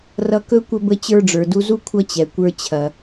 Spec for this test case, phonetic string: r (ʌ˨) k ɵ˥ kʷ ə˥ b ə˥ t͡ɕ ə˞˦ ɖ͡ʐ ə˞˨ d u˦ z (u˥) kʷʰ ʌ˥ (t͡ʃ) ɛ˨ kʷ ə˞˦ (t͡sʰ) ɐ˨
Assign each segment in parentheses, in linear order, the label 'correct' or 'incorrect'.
incorrect, correct, incorrect, incorrect

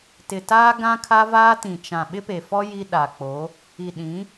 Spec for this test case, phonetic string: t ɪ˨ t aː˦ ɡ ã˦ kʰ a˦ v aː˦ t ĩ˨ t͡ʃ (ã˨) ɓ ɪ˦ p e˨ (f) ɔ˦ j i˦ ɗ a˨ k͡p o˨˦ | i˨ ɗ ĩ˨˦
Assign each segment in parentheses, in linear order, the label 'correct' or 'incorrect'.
correct, correct

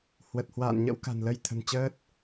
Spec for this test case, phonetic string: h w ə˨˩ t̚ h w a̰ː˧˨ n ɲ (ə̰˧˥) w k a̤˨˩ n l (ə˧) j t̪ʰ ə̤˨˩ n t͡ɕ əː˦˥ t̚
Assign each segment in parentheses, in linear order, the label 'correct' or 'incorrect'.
correct, correct

